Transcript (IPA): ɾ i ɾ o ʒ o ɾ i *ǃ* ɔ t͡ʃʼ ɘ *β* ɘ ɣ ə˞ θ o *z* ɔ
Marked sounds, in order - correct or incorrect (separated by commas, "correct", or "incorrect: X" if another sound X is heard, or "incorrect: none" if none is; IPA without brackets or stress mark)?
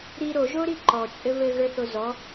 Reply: correct, correct, correct